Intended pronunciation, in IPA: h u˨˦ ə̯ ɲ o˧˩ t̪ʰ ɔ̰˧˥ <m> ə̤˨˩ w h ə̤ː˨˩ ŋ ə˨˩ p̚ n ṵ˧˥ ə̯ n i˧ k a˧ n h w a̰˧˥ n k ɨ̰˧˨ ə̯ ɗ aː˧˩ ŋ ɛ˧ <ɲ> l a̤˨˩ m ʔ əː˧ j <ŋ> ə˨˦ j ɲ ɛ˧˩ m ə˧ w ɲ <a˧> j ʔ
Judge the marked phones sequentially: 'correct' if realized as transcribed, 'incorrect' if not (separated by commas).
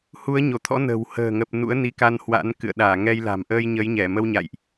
incorrect, incorrect, incorrect, incorrect